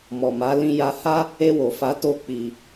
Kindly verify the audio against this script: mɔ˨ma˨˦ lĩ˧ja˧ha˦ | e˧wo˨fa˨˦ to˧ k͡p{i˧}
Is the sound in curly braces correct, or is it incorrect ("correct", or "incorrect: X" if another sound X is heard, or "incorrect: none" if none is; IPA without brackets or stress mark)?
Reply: correct